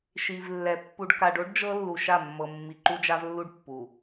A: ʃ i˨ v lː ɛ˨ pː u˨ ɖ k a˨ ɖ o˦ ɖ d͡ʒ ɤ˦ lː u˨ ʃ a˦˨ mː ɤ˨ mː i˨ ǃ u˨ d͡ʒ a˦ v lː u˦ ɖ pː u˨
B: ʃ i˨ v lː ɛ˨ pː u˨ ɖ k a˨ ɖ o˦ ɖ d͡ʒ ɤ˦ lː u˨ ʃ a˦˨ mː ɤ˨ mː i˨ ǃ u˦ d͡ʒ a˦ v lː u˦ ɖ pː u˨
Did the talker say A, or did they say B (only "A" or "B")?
B